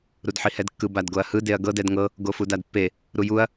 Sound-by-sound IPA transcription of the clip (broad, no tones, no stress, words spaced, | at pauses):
ɾudħihɛdkːɯ badɡoɐ̯hɯ deɐ̯ɡɤd ɛdŋɤ | ɡofudadpːe | ɾujuɐ̯